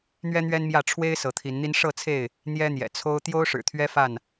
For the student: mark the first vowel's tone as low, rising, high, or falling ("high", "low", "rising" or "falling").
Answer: high